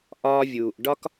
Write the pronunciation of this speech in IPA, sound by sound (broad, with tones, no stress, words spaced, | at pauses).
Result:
ʔɒː˧vʲuː˩ʔ ɖɒ˧k